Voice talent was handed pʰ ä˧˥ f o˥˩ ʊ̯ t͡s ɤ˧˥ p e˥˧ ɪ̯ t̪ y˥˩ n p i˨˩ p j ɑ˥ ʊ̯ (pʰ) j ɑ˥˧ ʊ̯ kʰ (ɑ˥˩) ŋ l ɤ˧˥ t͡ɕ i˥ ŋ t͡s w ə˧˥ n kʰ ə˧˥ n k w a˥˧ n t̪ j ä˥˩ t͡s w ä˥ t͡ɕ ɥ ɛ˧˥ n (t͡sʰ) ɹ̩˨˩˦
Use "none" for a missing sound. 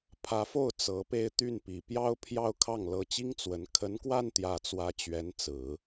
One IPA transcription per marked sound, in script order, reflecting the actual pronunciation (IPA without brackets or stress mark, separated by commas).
pʰ, ɑ˥˩, t͡s